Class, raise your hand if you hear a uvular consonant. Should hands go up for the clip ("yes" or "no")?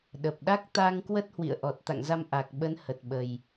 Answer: no